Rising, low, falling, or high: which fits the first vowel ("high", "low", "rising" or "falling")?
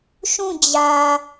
falling